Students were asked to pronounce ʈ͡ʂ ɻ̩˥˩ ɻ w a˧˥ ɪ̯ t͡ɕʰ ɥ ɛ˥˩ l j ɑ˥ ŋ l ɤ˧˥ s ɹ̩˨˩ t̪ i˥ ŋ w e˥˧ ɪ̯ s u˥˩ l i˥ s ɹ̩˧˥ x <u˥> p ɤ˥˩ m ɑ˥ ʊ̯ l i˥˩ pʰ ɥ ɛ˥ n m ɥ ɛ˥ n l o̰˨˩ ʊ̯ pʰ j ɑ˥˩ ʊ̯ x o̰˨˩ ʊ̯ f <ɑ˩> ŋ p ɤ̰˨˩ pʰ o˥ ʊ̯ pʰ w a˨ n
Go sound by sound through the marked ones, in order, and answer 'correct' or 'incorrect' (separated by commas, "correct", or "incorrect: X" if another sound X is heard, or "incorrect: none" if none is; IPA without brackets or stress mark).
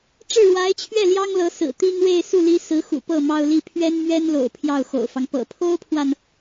incorrect: ṵ˨˩, incorrect: ɑ˦